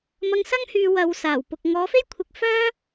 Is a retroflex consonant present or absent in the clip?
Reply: absent